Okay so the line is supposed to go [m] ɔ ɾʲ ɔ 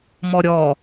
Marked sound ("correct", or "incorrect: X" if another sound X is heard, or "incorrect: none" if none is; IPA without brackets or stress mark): correct